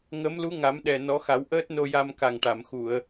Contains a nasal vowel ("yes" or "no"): no